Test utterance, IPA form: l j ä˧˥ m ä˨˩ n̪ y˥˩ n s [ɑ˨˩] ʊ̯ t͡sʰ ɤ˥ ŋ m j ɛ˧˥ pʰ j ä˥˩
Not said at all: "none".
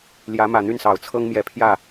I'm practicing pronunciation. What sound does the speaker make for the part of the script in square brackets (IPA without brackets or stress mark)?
ɑ˨˩